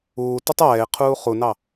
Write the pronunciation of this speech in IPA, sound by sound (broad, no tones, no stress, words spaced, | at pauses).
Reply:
uː tutˤɛːɪ̯ qʰuːχunɑ